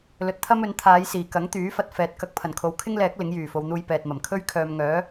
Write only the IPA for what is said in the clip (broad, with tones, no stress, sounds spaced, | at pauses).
l ɵ˨ t̚ t̪ʰ ɐ˥ m ɵ˨˥ n t̪ʰ aː˨˧ j s iː˨˩ k ɐ˨˥ ŋ t̪ yː˨˥ f ɐ˧ t̚ f ɛː˨ t̚ k ɐ˧ k̚ pʰ ɐ˨˩ n kʰ o˨˥ w kʰ ɪ˥ ŋ l ɛː˨˥ k̚ l ɪ˨˥ ŋ j yː˨˩ f o˨ w n̪ uː˧ j p ɛː˨ t̚ m ɐ˨˩ m kʰ ɵ˥ ɥ kʰ œː˨ m ŋ œː˨˥